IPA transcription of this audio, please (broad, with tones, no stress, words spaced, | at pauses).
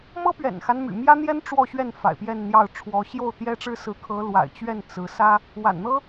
mɤ˥pɥɛ̰˨˩nxa˦n my̰˨˩mjä˥n̪jɛ˥n ʈ͡ʂwɔ˥˧ɕɥɛ˥˩n fa̰˨˩ɪ̯pjɛ˥˧nn̪jɑ˥˩ʊ̯ʈ͡ʂʰwɔ˧˥ ɕjo˥˩ʊ̯t̪jɛ˥ʈ͡ʂɻ̩˥sɹ̩˧˥ kʰɤ˧˥lwa̰˨˩ɪ̯t͡ɕɥɛ˥˩n t͡sɹ̩˧˥ sä˥ | wa̰˨˩nn̪ɤ˥